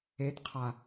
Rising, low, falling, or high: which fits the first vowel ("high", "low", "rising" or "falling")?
rising